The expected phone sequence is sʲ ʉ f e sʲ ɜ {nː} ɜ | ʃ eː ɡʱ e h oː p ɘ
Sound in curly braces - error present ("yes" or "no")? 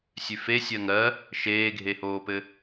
yes